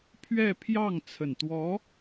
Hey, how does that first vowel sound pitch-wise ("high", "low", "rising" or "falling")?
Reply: falling